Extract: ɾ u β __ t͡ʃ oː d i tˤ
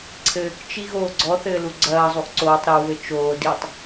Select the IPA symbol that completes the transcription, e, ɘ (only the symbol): ɘ